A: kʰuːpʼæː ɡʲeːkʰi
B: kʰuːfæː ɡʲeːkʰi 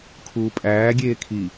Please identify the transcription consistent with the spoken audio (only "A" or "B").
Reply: A